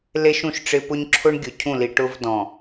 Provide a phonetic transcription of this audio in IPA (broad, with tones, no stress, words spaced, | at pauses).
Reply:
le˦ʃũ˦˨ʃ ʈ͡ʂɪ˦ pʊ˦ɲ ǁʰʊ˦ɳ ɡʲʊ˨cʰũ˦˨li˨ ʈʊ˦vdɔ̃˨